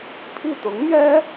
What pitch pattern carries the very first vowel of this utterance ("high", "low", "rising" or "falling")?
falling